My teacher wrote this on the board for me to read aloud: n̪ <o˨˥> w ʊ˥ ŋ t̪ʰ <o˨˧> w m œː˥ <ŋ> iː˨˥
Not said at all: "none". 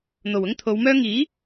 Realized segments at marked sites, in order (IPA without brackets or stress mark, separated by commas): o˨˩, o˨˧, ŋ